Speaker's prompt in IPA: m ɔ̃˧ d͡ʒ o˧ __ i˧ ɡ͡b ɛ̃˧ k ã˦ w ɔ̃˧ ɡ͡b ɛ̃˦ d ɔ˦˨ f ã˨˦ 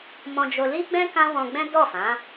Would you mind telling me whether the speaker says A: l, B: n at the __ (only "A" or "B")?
A